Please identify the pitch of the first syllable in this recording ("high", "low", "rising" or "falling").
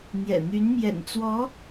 low